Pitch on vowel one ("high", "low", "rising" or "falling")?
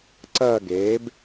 falling